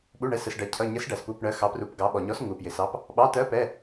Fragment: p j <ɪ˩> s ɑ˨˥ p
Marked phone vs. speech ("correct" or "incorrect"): correct